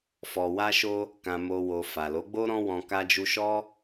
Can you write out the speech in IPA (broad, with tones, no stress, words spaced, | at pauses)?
fɔ˨wa˧ʃo˧ | kã˧mo˧ wo˨ fa˨lo˨˦ɡ͡bo˦ ɾɔ̃˦wɔ̃˧ ka˧d͡ʒu˧ʃɔ˦